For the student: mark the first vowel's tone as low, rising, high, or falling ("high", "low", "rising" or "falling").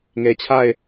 low